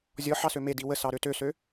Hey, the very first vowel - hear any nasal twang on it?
no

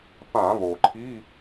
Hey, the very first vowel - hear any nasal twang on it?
yes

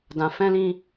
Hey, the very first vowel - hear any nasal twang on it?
yes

